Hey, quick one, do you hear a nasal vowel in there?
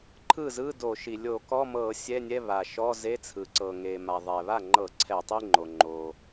no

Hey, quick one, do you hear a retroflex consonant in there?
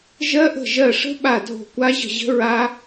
yes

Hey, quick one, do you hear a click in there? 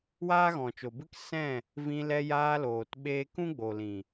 no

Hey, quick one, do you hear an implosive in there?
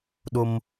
yes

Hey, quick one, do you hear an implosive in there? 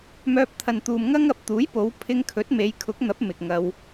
no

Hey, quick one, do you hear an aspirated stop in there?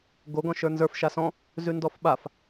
no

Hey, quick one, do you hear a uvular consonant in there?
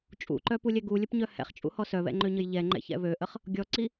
yes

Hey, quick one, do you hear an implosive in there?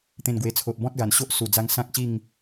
no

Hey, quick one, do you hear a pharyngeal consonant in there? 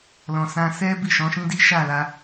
no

